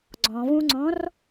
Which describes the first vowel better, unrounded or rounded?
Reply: rounded